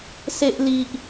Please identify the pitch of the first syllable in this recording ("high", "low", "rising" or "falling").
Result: high